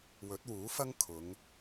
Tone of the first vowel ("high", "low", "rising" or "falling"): rising